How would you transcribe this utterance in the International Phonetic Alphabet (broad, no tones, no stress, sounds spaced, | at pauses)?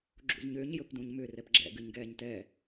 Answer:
ɡ͡ǁ ṵ z ɲ ʏː ɲ j ɵ p d ũ ɲ m ʏ r ɛ p ɡ͡ǁ ɛ̰ ɡ ɨ ɲ ɡ ɛː ɲ t ɛ